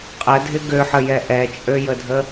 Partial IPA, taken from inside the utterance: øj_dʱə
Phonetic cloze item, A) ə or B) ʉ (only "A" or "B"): A